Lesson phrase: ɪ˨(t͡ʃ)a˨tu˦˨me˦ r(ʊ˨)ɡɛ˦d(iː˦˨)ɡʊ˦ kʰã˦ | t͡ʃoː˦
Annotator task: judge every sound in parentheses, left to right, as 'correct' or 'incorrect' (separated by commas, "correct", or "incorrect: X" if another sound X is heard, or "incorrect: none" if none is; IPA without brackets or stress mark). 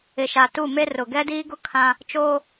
incorrect: ʃ, correct, incorrect: iː˦